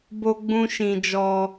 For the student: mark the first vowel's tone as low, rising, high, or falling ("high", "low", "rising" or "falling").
high